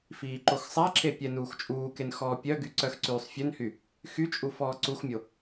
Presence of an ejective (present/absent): present